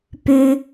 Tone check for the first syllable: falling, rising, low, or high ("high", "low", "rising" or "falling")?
high